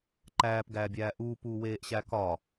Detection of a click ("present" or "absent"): present